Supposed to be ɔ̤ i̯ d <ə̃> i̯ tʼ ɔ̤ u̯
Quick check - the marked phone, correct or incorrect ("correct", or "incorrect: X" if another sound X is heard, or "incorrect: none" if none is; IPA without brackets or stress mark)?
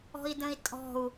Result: correct